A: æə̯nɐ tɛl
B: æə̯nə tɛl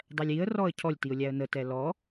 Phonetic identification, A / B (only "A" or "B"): B